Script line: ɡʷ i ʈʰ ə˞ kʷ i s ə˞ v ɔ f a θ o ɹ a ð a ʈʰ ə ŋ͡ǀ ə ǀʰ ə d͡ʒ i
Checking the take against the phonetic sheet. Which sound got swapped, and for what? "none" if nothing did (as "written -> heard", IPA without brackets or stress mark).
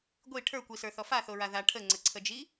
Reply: v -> θ